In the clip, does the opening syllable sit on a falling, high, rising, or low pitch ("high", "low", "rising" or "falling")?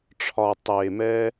low